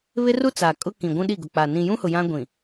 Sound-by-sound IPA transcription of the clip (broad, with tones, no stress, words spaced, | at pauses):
βɪ˦ru˦t͡sa˨ kʼʊ˦kĩ˨ ɡʷũ˦ɗi˦˨ ɡʊ˨k͡pa˨ nĩ˨jũ˦hʊ˨ jã˦ ɡʷĩ˨